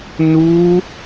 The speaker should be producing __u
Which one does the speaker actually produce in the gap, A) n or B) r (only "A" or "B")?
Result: A